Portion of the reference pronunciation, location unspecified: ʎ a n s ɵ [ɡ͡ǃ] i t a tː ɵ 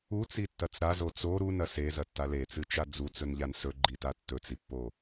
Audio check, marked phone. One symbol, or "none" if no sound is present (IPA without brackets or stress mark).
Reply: ɡ͡ǃ